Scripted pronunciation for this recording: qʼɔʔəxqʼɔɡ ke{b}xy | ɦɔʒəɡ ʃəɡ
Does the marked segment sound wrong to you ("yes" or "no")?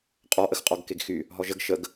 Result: yes